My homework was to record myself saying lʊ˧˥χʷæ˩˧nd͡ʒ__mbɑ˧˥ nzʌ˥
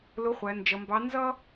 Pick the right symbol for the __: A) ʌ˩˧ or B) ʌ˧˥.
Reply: A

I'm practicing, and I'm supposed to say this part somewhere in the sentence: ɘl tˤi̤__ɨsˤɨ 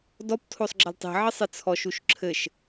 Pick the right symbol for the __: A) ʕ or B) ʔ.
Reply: A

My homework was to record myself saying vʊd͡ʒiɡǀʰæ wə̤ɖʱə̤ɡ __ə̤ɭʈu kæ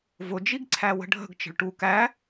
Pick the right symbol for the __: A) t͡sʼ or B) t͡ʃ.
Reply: B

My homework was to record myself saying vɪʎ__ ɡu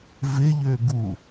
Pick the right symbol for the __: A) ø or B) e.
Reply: A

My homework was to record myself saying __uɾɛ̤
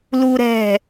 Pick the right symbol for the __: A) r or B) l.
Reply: B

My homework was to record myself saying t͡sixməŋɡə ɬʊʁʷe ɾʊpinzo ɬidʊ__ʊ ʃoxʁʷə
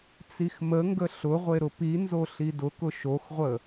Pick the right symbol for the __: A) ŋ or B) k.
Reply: B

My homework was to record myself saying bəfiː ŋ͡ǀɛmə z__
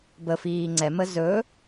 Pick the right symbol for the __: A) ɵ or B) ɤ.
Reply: A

